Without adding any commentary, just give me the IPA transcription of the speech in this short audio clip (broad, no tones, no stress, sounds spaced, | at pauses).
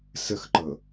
s ə x ǃ ɤ